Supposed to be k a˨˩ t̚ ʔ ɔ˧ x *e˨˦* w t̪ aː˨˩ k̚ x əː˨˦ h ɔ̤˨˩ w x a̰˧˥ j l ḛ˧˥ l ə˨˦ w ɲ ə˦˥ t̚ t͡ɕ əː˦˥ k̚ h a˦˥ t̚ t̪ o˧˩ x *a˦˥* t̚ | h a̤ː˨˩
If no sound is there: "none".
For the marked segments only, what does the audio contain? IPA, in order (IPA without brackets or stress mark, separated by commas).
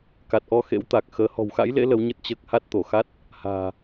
ḛ˧˥, a˦˥